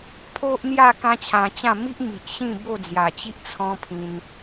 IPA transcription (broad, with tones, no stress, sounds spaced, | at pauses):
pʰ o˦ ʔ n̪ j a˥˧ k ã˦ t͡ɕʰ ã˧ t͡ɕ ã˥˧ m i˦ ʔ m i˨ ʔ ɕ ĩ˥˧ b o˥˧ d͡z j a˨˩ t͡ɕ i˦ ʔ t͡sʰ ɔ̃˦ pʰ ĩ˧ n